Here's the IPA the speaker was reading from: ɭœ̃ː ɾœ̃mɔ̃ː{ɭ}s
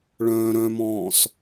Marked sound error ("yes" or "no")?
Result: yes